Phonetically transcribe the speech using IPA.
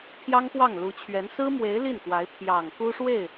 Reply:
pʰjɑ˥ŋpwɑ˥˩ŋlu˧˥t͡ɕʰɥɛ˧˥n sɹ̩˥mwe˧˥ɪ̯ li˥˩nkwa˧˥ɪ̯ pʰjɑ˨˩ŋ ku˥ʂwe˥˩ɪ̯

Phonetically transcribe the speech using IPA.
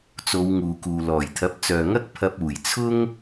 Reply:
t͡so˨˧wŋuː˨kuː˨ lɔː˨˩jt̪ʰɐ˨˥p̚t͡sœː˨ŋɐ˥k̚ pʰɐ˧p̚uː˨˩jt͡sʰʊ˥ŋ

